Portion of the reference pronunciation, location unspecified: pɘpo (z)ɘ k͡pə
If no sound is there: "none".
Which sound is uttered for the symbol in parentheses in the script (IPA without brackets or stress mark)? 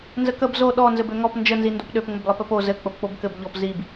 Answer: z